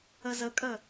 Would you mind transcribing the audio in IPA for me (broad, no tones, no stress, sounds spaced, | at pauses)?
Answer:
ə z ə kʼ ə